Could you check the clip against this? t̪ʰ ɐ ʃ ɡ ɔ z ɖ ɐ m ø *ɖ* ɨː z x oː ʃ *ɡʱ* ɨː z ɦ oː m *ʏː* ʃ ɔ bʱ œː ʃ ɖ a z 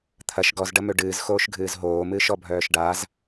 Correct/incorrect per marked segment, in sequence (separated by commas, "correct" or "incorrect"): correct, correct, incorrect